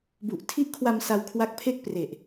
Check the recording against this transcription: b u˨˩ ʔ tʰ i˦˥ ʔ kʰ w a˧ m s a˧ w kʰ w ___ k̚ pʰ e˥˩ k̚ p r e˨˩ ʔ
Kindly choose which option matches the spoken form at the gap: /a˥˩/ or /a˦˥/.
a˦˥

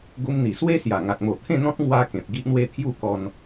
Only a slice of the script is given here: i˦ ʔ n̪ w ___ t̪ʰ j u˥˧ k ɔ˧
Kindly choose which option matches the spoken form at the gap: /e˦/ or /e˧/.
e˦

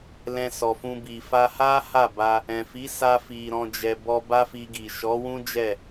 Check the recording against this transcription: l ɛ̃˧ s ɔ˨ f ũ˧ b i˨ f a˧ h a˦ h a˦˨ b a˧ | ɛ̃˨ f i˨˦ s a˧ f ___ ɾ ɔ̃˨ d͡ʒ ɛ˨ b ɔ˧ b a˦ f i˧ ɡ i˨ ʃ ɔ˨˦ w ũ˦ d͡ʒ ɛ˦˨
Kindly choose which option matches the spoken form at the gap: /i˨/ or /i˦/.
i˨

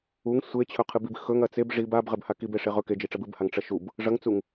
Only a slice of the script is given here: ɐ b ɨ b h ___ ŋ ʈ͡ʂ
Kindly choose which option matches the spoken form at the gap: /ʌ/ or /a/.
a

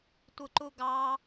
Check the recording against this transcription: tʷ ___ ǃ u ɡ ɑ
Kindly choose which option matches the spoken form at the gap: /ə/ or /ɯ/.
ɯ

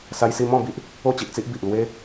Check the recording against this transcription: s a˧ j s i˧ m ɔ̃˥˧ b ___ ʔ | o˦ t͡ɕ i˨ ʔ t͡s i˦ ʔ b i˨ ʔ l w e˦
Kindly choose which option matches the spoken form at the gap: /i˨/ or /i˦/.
i˦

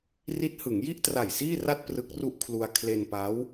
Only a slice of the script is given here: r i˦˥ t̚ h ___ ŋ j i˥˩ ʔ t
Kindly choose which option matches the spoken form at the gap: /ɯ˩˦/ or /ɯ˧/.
ɯ˩˦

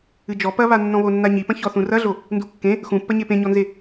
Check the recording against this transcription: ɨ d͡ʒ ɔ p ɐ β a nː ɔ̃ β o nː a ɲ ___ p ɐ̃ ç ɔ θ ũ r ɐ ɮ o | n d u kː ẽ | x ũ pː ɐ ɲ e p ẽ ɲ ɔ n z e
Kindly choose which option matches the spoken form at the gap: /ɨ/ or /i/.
i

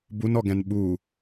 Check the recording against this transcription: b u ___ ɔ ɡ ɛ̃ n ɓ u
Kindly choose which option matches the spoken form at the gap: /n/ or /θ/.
n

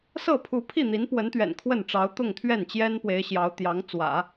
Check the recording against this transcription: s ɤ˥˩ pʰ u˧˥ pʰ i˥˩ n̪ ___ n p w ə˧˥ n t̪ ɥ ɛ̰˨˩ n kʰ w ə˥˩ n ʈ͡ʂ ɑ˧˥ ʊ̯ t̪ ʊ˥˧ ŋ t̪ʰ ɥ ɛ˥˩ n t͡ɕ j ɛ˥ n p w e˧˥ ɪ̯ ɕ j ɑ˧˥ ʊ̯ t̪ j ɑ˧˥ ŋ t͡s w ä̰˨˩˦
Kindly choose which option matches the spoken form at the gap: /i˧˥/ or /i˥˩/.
i˧˥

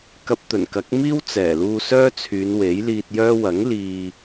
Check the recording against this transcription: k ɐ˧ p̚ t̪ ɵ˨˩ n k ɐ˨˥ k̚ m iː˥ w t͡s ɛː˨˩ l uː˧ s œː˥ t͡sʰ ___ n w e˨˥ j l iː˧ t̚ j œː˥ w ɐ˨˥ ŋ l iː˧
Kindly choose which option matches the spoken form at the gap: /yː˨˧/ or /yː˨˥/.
yː˨˧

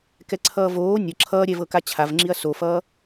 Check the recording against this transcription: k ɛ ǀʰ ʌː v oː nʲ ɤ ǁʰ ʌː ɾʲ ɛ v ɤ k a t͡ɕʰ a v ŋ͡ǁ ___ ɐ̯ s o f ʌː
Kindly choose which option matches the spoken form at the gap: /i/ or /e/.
i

